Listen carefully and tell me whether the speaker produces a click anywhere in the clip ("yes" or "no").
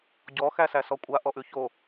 no